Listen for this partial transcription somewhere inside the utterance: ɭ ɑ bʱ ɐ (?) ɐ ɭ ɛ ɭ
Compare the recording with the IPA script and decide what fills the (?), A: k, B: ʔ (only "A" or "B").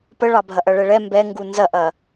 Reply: B